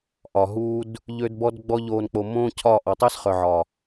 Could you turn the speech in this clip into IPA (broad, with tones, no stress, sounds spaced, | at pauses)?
ʔ ɒ˨ ɦ uː˦ d | ʎ ø˦ d b ɔ˦ d ɡ͡b ɔ˦ ʎ oː˧ n k͡p o˧ m õː˦ cʰ ɒ˦˨ ʔ ɔ˨ tˤ əː˦ s χ œ˨ ʕ ɒ˨